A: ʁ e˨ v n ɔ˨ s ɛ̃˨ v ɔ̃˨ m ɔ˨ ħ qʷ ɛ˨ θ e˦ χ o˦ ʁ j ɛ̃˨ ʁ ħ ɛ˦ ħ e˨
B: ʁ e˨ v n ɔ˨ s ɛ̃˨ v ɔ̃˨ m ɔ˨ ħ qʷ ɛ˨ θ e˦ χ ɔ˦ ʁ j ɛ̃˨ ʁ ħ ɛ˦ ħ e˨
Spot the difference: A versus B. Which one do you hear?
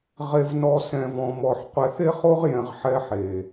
A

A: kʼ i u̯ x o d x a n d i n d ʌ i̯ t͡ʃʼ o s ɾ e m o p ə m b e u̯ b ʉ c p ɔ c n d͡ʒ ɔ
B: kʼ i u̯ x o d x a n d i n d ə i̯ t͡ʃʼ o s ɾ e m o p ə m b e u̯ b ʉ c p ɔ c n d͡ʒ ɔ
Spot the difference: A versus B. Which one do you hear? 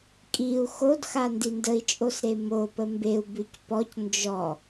B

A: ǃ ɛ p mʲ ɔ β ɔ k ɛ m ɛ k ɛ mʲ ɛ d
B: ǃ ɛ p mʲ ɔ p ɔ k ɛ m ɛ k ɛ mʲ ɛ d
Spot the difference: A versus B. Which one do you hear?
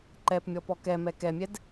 B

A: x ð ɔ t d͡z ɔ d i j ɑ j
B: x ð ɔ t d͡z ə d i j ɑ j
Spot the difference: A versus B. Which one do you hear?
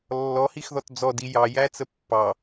A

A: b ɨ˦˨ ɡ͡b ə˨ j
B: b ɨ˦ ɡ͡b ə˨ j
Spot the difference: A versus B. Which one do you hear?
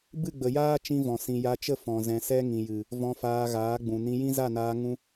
A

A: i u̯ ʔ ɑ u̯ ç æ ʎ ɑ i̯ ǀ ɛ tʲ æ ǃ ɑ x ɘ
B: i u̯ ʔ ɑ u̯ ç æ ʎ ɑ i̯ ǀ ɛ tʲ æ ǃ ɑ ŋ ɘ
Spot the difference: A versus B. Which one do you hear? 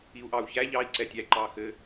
A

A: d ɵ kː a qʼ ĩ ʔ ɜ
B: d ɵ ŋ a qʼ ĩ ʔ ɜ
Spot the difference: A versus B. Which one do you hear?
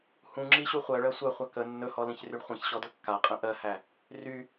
A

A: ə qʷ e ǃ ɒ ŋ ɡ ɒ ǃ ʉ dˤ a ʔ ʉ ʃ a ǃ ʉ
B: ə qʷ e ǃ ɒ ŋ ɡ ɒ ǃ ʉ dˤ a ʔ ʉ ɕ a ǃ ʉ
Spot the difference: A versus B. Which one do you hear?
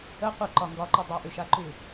A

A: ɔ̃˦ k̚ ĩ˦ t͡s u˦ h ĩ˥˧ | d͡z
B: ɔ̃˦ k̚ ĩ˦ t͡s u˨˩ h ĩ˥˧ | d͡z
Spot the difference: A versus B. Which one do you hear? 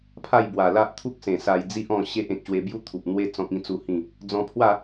A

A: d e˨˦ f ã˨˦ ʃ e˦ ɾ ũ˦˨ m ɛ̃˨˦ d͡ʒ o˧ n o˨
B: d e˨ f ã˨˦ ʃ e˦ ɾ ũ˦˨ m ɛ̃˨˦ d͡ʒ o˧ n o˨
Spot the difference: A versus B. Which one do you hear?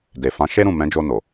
B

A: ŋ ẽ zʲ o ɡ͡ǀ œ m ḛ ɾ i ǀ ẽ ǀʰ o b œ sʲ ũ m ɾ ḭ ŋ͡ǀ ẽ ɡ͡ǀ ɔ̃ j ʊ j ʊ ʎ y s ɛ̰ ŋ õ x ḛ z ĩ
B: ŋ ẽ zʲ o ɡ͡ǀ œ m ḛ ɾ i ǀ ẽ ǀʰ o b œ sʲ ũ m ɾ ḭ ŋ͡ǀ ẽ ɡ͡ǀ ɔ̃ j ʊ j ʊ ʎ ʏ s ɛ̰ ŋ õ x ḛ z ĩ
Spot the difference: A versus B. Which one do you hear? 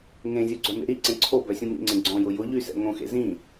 A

